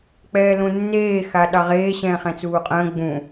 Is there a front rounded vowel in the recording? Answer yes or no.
no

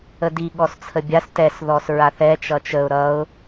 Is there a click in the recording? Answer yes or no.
no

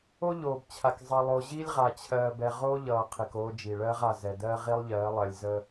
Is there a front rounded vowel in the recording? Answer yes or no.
no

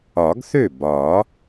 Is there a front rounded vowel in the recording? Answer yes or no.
yes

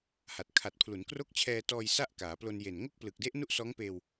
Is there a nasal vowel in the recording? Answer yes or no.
no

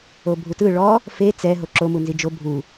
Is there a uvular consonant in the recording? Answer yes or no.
no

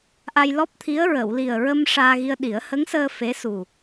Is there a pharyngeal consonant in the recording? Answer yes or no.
no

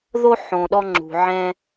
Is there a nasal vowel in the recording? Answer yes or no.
yes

